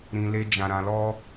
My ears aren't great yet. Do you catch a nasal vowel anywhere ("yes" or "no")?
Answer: yes